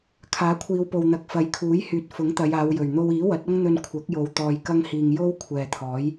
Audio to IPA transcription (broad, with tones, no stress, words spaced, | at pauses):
kʰaː˨˥kʷʰiː˨˧wpo˨wn̪ɐ˨˥k̚ fɐ˨˥jkʰuː˨˥jhyː˨t̚ fʊ˨˥ŋt̪ɐ˨˧jaː˨˧wjɵ˨˩ɥ n̪o˧wiː˨˥wɐ˨˥t̚ ɐ˥ŋn̪ɵ˧n kʷʰɐ˨˥k̚jo˨˧w t̪ɔː˧jkɐ˥ŋhiː˧ŋ jo˥w kʷʰɛː˨t̪ʰɔː˨˥j